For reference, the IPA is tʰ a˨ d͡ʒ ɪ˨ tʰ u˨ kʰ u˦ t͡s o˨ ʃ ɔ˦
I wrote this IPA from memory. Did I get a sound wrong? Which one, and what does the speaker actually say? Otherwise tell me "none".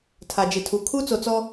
ʃ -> t͡s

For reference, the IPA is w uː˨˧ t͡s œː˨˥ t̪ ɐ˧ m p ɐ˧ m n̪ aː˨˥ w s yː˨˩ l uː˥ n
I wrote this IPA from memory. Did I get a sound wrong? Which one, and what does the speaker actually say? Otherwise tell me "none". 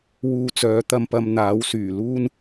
none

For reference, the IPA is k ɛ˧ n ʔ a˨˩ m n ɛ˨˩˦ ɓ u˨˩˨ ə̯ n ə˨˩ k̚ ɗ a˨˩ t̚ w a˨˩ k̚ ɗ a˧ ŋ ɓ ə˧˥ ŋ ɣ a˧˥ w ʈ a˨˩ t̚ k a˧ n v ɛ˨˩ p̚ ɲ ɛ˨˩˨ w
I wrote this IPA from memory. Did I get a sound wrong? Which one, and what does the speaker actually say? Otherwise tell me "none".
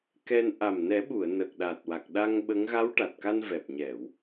none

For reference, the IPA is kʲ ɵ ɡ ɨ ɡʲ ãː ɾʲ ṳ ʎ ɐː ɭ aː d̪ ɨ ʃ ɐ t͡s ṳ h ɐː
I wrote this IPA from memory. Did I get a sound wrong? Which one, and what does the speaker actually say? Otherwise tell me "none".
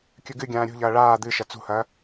none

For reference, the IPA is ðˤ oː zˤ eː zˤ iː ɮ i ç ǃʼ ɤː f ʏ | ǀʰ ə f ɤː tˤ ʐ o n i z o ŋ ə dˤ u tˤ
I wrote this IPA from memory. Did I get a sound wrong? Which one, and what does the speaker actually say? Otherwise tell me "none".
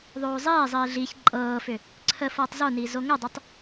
ʐ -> z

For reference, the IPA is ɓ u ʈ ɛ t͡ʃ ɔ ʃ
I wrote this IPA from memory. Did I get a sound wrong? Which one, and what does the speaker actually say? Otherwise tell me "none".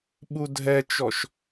ʈ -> dʱ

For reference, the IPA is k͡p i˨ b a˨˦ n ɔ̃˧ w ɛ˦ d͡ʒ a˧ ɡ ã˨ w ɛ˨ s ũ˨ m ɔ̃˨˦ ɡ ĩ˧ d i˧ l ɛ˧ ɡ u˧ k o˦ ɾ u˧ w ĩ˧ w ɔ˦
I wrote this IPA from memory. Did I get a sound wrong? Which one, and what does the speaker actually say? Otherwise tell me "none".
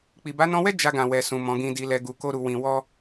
none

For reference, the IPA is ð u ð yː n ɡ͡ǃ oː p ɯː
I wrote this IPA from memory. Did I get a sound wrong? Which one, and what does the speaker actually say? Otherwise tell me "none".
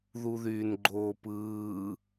none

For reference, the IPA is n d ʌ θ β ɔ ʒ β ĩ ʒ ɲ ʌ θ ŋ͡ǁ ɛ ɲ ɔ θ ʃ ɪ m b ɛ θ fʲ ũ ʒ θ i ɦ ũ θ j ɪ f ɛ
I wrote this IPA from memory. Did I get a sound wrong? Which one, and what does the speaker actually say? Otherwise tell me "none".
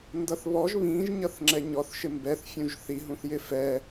none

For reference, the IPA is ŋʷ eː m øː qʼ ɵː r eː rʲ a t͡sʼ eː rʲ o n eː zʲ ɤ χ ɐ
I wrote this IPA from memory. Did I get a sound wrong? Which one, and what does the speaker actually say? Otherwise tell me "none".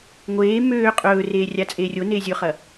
ɤ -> ɵ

